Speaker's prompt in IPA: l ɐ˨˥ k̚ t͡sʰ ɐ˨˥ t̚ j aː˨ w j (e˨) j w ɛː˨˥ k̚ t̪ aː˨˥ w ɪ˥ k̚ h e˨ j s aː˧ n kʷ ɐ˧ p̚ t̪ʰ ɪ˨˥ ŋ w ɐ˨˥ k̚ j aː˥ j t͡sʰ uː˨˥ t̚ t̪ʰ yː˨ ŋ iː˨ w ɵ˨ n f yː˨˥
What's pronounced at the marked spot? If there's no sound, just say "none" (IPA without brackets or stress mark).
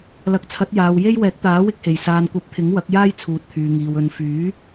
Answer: e˥